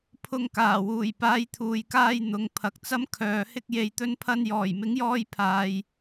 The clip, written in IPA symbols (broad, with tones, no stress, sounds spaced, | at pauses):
pʰ ʊ˧ ŋ k aː˨˩ w uː˨˩ j p aː˨˧ j t̪ʰ uː˨ j k aː˧ j n̪ ʊ˨˧ ŋ pʰ ɐ˨ k̚ t͡s ɐ˥ m kʰ œː˨ h ɪ˥ k̚ j e˨ j t̪ ɵ˧ n pʰ ɐ˧ n j ɔː˨˩ j m ɪ˨˥ ŋ j ɔː˧ j pʰ aː˨ j